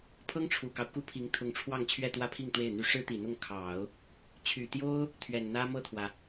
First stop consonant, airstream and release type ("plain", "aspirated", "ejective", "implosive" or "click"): aspirated